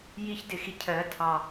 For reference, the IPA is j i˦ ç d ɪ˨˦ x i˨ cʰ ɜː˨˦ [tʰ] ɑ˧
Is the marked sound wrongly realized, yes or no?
no